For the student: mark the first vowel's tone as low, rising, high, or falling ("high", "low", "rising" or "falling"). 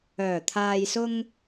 low